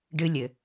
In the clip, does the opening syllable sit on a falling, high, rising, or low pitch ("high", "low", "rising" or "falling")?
high